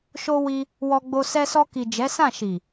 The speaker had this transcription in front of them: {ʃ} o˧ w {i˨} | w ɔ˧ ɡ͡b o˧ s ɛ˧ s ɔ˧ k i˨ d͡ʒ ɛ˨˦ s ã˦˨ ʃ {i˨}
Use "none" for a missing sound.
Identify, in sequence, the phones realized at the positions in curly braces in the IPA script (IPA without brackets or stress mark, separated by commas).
ʃ, i˧, i˨